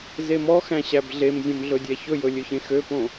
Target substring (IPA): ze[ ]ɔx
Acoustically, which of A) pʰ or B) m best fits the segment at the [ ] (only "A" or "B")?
B